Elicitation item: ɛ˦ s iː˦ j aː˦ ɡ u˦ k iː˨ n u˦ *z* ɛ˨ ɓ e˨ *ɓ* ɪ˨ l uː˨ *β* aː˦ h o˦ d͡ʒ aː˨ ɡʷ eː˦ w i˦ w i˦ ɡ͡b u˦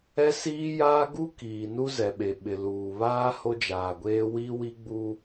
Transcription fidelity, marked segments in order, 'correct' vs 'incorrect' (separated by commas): correct, correct, correct